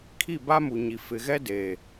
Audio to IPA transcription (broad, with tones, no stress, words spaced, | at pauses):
kʰi˦˨ba˦mu˨ɲi˨ fɪ˨ɣɛ˦deː˨